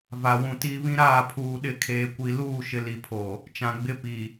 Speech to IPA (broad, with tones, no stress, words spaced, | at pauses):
va˨wũ˨ ti˦ βĩ˦ɾaː˦˨pʰuː˨ ɗɪ˦˨kʰeː˨kʷi˨ luː˦˨ʃɪ˨ li˨pʰo˨ | t͡ʃã˨ɡ͡bɪ˦pi˨